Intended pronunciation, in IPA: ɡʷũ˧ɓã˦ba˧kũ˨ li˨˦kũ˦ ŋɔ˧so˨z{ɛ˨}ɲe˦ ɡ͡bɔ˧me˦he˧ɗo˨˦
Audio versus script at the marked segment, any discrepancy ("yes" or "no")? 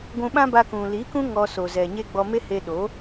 no